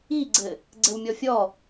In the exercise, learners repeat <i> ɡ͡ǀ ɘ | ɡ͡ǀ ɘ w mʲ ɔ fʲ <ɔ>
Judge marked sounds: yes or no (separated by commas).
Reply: yes, yes